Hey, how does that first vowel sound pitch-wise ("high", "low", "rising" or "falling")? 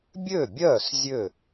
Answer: falling